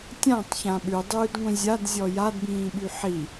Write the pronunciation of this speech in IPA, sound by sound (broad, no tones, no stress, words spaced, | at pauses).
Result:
tʲãtˤçã ɓʉdˤʉːdŋʷĩ zʲadzʲɔ jadbĩːɓy ħi